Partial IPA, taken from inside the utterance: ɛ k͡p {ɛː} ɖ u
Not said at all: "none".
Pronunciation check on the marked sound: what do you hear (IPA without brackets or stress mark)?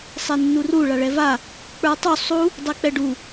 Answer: ɛ